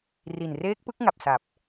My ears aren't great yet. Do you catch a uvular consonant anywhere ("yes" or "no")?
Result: no